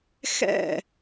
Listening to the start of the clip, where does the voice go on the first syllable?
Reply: falling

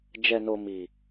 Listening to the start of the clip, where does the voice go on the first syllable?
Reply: low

